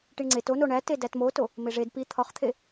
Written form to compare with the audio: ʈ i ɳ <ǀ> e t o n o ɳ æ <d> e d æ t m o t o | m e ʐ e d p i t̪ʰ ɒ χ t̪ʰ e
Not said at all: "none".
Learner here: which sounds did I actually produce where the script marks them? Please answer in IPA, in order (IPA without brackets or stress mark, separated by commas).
ŋ͡ǀ, t